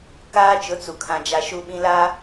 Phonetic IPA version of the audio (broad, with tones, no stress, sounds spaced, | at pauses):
k aː˦ t͡ʃ ʊ˨˦ t͡s u˨ kʰ ã˨ d͡ʒ a˨ ʃ u˦ ɓ ĩ˦ l a˦